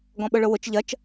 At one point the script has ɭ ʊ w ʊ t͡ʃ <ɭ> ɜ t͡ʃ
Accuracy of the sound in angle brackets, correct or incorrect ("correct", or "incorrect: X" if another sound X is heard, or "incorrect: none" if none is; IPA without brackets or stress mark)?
incorrect: ʎ